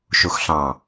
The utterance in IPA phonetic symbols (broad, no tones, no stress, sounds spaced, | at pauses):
ʃ u x ɬ ɑ̃